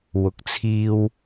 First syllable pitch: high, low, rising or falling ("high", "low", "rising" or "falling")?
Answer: low